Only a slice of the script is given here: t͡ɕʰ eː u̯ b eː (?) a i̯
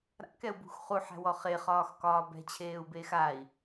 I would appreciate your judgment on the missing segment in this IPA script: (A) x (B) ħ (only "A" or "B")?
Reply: A